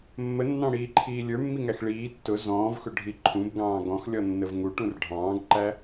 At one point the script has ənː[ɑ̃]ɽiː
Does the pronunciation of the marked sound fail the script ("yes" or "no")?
no